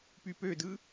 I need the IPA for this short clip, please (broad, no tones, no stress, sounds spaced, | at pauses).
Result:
p y p ø d ɯ